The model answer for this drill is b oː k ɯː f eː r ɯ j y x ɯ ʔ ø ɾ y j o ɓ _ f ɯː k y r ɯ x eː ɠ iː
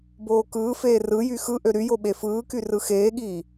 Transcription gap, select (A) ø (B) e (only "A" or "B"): B